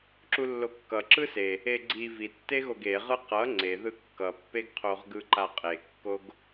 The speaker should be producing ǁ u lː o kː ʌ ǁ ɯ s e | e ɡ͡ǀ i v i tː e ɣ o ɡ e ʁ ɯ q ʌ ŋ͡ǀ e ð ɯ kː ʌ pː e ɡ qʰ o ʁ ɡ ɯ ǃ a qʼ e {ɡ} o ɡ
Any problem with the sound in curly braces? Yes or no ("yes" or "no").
yes